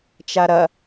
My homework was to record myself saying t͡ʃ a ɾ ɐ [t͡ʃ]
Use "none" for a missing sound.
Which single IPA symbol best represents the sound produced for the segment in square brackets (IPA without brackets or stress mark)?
none